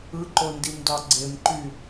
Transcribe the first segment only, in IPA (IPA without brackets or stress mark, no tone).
ɯ